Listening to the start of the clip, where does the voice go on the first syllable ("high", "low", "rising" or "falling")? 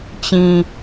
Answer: low